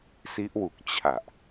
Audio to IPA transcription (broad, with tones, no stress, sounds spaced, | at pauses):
s i˦˥ ʔ w u˨˩ k̚ t͡ɕʰ a˨˩ ʔ